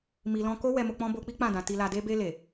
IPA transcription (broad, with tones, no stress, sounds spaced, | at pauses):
m i˨ l ɔ̃˧ k o˦ w ɛ˧ m o˧ k͡p ɔ̃˦ b o˧ k͡p i˦ k͡p ã˦˨ d ã˨ t i˨ l a˨ d e˧ b e˧ l e˨